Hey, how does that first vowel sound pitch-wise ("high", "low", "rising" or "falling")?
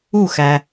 falling